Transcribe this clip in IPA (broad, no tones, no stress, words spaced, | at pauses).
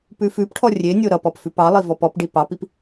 pʉfʉpʈʰɔ rʲenʲo ɾʌpɔp fʉpɑlˠi vɔpɔpɖi pɑpip